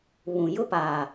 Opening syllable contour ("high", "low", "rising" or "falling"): low